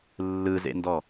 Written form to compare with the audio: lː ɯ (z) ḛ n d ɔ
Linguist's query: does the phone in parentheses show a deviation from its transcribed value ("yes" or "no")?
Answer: no